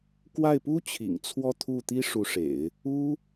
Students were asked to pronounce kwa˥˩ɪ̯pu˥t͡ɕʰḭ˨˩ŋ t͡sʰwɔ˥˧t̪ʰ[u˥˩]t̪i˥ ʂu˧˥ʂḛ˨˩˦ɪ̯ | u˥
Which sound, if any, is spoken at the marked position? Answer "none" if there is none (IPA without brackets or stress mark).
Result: u˥˩